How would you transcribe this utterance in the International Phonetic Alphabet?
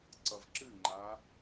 ǀ ʌ v ǁ ɨ ŋ͡ǃ a

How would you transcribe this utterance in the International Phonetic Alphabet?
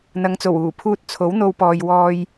n̪ ɐ˨˧ ŋ t͡s o˨˩ w uː˨˩ pʰ uː˥ t̚ t͡sʰ o˨˥ w n̪ o˧ w p ɔː˨ j w ɔː˧ j

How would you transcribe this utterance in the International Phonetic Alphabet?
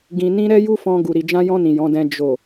ɡ ĩ˨ n ĩ˧ ɾ ɛ˦ j u˦ f ɔ̃˧ ɡ u˨ ɾ i˨ d͡ʒ ã˧ j ɔ̃˧ n ĩ˨ j ɔ̃˨˦ d ɛ̃˧ d͡ʒ o˨

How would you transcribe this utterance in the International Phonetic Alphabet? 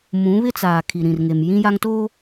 m ũ˨˦ β ɪ˦ t͡s aː˨ kʰ i˨ ɾ ĩ˨ r ŋ e˨ m j ĩ˦ j a˦ ŋ t oː˦

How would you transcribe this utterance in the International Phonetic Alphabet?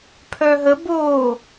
pʰ œ ɦ ə b o

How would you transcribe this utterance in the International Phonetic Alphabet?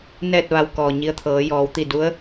n ɛː˥˨ t̚ ʋ a˧ w k ɔː˩ ɲ i˧ ə̯ t̪ʰ ɤː˩˧ j ɔː˩˧ w t̪ i˧˩ d u˧˥ ə̯

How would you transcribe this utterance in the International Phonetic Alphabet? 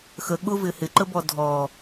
x ə ɠ ʊ v ɪ h ɪ ǃ ə b ɔ dʱ ɔ

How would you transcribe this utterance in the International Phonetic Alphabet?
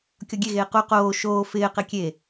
kʲ ɔ ɡʲ e ɣ eː q u q oː ʃ oː f ɪː q e kʲ e

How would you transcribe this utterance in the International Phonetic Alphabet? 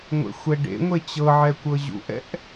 ŋʷ ḛ xʷ ɛ ɖ ḛ ŋʷ e t͡ɕ ɤ ʕ ɛ kʷ ɤ ʑ ṵ ʔ ɛ̰ ʔ

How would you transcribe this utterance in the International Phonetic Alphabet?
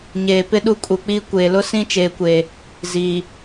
ɲ eː˨ p ɪ˦ ɗ u˦˨ kʼ u˨ k͡p iː˦ kʷ eː˨ l ʊ˦ s ĩ˦ t͡ʃ eː˦ kʷ eː˦ | z iː˨

